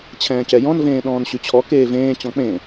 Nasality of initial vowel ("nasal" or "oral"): nasal